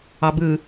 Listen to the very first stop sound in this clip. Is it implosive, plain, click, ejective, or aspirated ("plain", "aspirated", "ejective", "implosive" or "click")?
plain